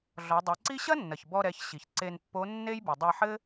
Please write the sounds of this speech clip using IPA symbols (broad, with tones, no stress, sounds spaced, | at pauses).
ɮ ɔ˩˧ dˤ i˩˧ ǀ i˥ ɕ ɐ˥ nː ɐ˩ ç b ɔ˧ ɾ ɛ˩˧ ç ɕ i˩ ç ǀ e˧ n pː o˧˥ nː e˥ j b ɨ˩ dˤ e˧ ħ ɘ˥